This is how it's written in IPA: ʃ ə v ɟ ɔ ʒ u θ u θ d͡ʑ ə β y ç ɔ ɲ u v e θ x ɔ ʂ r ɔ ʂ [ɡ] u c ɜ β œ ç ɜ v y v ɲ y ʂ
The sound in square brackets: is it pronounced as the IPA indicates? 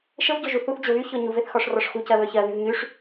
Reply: no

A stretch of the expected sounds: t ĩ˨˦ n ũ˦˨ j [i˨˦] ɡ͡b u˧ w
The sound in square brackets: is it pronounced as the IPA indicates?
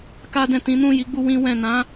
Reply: yes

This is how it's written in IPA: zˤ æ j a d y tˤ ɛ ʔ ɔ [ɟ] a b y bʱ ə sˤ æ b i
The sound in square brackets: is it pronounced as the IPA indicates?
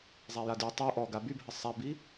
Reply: no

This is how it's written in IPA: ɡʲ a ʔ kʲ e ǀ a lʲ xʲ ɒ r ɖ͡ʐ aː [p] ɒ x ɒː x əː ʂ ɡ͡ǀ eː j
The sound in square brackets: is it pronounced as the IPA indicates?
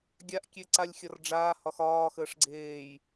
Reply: no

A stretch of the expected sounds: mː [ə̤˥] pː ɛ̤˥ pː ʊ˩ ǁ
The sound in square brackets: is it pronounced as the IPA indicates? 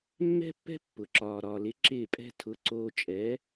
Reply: no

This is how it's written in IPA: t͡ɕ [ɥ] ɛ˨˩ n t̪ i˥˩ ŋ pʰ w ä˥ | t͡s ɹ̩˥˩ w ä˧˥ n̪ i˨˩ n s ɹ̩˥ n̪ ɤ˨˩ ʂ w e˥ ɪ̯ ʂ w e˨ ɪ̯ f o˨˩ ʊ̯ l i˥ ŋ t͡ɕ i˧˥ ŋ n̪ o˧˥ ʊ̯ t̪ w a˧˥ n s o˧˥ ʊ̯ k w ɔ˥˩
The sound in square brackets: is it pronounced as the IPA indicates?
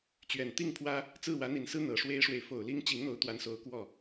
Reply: yes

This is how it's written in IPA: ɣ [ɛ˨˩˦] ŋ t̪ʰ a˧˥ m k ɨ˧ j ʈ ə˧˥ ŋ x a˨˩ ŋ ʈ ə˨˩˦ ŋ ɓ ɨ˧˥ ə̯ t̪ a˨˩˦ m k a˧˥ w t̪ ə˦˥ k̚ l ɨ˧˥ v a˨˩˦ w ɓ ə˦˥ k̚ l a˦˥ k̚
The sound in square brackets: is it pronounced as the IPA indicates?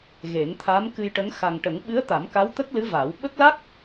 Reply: no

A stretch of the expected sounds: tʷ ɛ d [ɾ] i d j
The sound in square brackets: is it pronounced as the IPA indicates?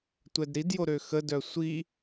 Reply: yes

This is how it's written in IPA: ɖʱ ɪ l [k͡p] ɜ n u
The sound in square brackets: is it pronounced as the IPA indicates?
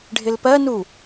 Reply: no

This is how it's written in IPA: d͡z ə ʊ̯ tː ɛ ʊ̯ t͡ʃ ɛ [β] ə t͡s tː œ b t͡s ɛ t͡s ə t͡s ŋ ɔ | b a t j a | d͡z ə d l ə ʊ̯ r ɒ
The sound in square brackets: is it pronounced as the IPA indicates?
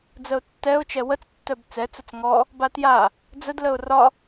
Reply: no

